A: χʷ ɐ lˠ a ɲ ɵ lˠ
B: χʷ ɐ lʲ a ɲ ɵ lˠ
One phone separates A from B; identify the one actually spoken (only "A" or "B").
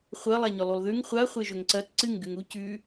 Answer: A